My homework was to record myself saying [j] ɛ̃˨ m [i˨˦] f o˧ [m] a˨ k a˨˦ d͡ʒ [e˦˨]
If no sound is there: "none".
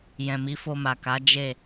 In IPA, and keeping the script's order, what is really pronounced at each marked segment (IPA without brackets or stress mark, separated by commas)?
j, i˨˦, m, e˦˨